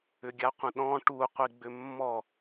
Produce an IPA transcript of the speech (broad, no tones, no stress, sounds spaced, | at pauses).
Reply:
ʏ ɡʲ a qʷ ə̃ ɗ ɔ̃ ʈ u qʷ i ɡ͡b ʏ mː ɔ